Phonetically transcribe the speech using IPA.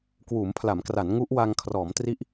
kwuː˩˦mpʰla˩˦mkra˩˦n ŋu˦˥ʔ wa˧ŋ kʰrɔː˩˦mtri˦˥ʔ

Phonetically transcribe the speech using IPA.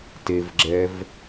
tevɡ͡ǁɛv

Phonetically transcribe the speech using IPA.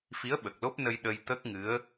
fi˧˥ə̯ɓə˨˩k̚lo˦˥p̚nə˧j ɗə˧j t̪ə˦˥k̚ŋɨ˧˥ə̯

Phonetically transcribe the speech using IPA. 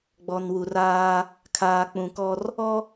ɡ͡bɔ˨nwu˨raː˦ | kʰaː˨k͡pũ˨kɔ˦r | ɔ˦

